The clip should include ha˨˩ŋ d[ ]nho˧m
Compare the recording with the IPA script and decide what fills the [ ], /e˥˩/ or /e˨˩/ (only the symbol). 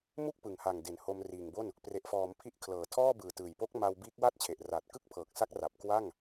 e˨˩